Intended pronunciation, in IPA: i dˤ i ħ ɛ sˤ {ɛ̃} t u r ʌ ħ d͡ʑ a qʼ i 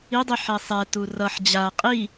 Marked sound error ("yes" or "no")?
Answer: yes